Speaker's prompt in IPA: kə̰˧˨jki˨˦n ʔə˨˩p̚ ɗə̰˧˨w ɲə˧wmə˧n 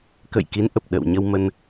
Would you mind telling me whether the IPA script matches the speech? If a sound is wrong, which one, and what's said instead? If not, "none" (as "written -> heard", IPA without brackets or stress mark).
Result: none